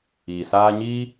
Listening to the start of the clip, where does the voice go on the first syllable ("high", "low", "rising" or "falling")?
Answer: low